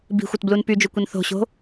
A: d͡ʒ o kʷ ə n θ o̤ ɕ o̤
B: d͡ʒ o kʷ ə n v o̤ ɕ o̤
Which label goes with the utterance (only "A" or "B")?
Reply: A